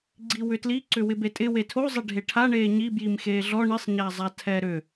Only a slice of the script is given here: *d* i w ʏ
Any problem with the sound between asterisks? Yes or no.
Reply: yes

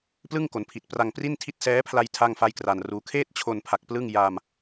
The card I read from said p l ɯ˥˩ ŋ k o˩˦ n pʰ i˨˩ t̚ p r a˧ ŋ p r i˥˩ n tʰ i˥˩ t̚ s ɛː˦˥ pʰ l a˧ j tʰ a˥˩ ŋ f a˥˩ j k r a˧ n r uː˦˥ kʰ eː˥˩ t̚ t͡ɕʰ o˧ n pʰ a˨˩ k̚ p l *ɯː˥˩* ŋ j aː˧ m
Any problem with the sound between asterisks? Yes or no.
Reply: yes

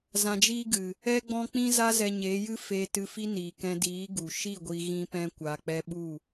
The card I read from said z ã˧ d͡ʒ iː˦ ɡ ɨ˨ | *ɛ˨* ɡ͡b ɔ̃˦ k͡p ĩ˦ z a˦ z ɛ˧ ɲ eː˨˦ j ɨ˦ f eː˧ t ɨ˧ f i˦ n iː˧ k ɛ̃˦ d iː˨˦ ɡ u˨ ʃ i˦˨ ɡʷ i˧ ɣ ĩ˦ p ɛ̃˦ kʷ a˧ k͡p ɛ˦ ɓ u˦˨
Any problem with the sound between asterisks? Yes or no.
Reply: yes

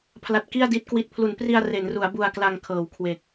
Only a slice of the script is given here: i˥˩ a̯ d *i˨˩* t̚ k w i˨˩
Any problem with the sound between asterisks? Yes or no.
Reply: yes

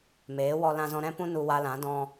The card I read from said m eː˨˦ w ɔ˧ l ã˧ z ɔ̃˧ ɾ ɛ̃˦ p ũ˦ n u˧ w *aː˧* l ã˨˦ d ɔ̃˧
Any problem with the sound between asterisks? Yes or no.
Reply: yes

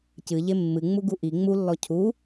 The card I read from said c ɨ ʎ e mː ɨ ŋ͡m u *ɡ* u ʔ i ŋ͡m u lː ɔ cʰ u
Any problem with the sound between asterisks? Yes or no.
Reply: no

